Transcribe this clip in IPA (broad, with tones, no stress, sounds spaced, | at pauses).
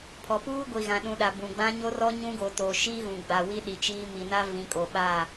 pʰ ɔ˨ p uː˦ ɡʷ i˨ ɣ ã˨ ɗ ũ˨ ɗ a˨ b ũ˨ ɡ͡b ã˦ ɲ o˦ r ɔ˦ ɲ ũ˦ ɡ o˨ t o˨ ʃ i˦ ɣ ũ˨ ɡ͡b a˨ w i˦ ɗ i˨ t͡ʃ iː˦ m i˨ n a˦ v ĩ˨˦ kʼ o˨ ɓ a˦˨